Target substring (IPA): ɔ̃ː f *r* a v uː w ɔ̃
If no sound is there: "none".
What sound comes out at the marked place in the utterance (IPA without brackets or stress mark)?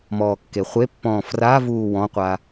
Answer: r